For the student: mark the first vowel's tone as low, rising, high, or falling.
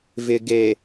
low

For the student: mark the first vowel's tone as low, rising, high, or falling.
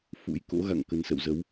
rising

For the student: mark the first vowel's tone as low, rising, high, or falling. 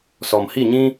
low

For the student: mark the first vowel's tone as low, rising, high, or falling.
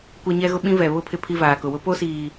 high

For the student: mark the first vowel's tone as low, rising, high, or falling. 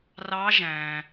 rising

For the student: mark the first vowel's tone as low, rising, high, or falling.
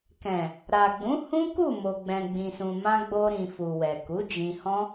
low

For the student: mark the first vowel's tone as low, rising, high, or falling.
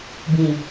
low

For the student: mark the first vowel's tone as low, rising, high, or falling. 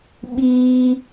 high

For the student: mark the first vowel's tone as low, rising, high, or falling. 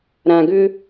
low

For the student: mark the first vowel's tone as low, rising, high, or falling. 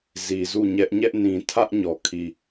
low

